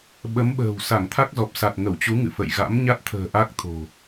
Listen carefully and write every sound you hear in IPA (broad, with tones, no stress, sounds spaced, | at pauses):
ɓ ə˨˦ m ɓ ə̤ː˨˩ w s a˧˩ ŋ t̪ʰ a˦˥ k̚ z ɔ˨˩ p̚ s a˨˩ t̚ ŋ ə˧˩ w t͡ɕ u˨˦ ŋ ɨ̰˧˨ f ə̰˧˨ j ɣ a̰˧˥ m ɲ a˦˥ t̚ t̪ʰ ə̤ː˨˩ ʔ a˦˥ k̚ t̪ʰ o̤˨˩